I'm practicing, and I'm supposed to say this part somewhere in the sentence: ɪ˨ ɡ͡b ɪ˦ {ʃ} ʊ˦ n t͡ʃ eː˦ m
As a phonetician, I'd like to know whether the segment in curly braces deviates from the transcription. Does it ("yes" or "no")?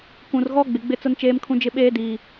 yes